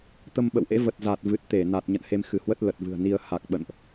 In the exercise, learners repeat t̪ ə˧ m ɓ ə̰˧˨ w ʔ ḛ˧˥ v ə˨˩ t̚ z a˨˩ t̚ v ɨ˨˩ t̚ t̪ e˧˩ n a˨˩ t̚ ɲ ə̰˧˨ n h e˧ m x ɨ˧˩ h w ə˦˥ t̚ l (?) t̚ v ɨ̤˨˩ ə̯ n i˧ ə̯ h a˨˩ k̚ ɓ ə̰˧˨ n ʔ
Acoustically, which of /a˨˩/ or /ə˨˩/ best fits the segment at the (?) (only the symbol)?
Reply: ə˨˩